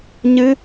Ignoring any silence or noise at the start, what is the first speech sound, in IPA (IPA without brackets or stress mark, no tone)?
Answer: ɲ